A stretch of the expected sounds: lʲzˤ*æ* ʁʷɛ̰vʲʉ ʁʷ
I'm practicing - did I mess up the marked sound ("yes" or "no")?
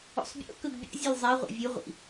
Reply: no